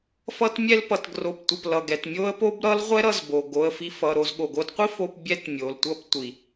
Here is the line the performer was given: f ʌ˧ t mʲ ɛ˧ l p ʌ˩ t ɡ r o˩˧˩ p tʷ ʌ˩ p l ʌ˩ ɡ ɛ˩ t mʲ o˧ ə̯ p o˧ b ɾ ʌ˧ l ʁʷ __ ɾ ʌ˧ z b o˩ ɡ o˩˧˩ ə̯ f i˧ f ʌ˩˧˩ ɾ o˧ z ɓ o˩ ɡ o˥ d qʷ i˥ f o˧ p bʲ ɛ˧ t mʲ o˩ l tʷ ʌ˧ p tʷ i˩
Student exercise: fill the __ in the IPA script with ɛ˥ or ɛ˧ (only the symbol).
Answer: ɛ˥